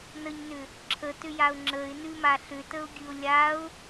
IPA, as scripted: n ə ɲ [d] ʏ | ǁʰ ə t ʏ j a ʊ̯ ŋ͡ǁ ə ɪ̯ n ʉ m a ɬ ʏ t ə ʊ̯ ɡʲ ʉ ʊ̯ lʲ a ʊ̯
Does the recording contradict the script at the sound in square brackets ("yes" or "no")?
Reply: yes